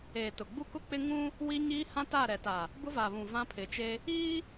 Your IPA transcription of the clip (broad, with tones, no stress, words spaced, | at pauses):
eː˨tʊ˨ɡ͡bu˦ kʊ˦k͡pɪ˦ ŋũ˦ | wi˦ɲiː˦ hã˦ta˦˨ɾɛ˨ta˨ | bʊ˦va˨βũ˨ vã˦pʰɪ˨t͡ʃe˦ | iː˦